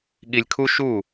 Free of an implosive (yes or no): no